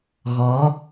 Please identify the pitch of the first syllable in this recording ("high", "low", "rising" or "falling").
rising